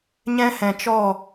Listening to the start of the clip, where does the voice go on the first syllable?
high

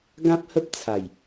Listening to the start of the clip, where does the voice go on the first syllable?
high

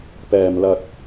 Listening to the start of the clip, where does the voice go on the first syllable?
low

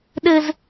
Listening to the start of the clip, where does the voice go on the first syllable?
high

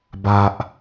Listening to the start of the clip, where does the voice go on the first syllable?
low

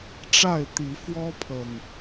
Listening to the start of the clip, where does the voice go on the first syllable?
falling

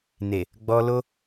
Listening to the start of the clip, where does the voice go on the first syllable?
low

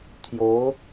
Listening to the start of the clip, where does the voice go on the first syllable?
rising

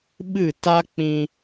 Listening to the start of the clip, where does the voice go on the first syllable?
falling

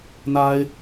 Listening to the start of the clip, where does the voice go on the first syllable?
high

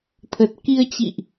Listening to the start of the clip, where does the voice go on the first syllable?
low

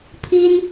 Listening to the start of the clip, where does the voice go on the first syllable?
high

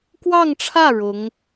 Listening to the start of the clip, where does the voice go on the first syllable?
falling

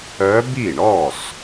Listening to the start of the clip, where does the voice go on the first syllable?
rising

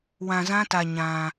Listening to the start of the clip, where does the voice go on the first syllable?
low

